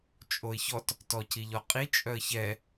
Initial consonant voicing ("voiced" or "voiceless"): voiceless